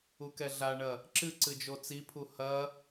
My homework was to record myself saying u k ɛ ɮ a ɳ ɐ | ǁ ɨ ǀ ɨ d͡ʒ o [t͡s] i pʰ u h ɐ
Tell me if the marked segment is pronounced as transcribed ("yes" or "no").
yes